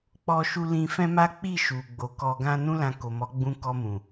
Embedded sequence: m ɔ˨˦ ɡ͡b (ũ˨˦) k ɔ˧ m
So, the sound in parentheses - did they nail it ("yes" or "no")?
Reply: no